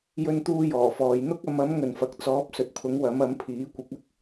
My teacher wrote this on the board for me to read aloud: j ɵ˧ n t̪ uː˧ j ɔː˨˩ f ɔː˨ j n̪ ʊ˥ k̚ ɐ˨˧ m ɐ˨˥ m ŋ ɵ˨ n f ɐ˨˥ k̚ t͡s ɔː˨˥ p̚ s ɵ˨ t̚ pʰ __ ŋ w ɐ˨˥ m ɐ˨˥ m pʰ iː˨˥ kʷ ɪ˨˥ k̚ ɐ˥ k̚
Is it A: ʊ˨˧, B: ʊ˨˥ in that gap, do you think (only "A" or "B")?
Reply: B